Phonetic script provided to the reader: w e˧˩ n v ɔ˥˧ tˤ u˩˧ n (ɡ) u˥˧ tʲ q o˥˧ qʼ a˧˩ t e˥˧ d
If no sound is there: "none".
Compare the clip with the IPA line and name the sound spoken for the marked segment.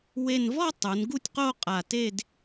ɡ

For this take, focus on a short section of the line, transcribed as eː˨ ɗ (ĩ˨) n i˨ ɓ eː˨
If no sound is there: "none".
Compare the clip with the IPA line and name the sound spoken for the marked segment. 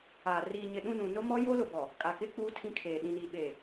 ĩ˨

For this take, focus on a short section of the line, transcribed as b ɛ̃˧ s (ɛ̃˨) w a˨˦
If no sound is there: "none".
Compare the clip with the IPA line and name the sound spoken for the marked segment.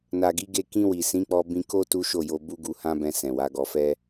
ɛ̃˨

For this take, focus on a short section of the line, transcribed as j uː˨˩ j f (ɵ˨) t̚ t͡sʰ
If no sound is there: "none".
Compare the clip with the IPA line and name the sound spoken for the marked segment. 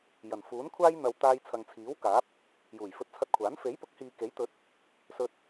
ɵ˧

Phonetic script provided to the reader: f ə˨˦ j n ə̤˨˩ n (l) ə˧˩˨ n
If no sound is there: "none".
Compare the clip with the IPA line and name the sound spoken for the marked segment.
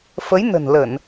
l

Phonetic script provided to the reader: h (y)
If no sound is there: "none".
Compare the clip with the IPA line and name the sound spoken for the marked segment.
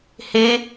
e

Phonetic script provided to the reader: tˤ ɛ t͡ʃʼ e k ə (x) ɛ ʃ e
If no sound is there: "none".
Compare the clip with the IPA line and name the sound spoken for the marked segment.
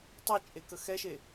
x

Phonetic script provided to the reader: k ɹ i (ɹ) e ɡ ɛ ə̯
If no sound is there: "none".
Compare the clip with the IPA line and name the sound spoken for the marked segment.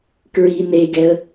n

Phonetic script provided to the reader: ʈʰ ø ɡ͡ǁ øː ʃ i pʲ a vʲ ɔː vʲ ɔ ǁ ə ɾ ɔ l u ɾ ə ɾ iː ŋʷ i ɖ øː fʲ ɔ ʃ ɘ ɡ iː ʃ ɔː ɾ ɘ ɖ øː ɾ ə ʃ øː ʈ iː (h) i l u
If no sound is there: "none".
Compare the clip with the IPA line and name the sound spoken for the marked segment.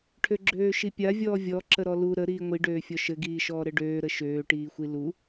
xʷ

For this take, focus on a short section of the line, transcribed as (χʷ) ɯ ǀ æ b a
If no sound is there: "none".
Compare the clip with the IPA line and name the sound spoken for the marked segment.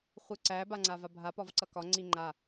χʷ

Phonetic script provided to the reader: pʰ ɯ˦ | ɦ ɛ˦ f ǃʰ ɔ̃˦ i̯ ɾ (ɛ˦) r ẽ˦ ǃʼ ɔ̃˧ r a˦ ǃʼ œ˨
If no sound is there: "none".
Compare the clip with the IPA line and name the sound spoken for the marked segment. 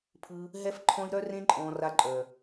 œ˦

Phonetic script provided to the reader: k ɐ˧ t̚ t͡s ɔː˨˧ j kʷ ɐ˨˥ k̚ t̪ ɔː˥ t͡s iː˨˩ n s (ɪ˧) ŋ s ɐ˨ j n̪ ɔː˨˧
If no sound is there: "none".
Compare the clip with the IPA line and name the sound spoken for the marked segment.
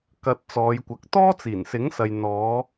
ɪ˨˥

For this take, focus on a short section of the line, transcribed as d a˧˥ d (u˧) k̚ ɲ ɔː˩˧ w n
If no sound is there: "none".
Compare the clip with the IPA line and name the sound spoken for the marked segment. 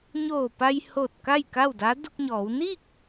u˧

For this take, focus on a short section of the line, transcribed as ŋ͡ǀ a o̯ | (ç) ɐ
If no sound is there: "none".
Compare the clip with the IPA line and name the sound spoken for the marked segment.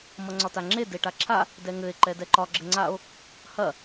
h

